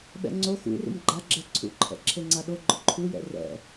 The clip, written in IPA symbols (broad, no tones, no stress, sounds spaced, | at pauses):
ɓ ɛ̰ ŋ͡ǀ o x ṵ r ṵ m ɡ͡ǃ a ɡ͡ǁ ɛ ǀʰ ṵ ǃʰ ɛ̰ ǁʰ e ŋ͡ǀ a ɗ o ɡ͡ǃ ʊ ǃʰ u j ɛ̰ r ɛ̰